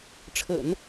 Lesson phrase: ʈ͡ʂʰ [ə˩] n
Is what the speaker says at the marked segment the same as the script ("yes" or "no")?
no